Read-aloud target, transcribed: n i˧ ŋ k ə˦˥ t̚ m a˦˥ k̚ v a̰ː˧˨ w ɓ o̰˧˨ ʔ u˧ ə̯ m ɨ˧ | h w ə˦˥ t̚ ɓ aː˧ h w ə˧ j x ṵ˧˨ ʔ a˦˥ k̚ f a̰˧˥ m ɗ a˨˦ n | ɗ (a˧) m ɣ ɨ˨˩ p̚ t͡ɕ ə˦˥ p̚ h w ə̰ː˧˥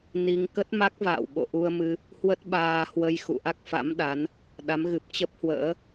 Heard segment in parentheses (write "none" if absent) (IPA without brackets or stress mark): a˨˦